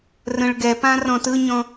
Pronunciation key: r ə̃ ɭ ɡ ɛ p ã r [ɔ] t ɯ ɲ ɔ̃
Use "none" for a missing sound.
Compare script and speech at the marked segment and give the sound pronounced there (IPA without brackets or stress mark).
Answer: ɔ̃